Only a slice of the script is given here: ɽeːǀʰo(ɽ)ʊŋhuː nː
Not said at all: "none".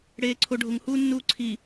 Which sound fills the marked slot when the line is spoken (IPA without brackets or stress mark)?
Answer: ɖʱ